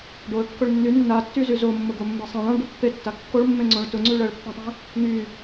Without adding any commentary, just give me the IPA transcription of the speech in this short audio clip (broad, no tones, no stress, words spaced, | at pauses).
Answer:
ɖoə̯kːʊɭ nːy nːatːyzy zomːʊɡomːe sˤẽɭ ãɭɖʊ pːetːa kːoɭmːẽŋ͡ǀõɭ tʊŋ͡ǀy ɭɜɭpːãtˤẽ | ŋy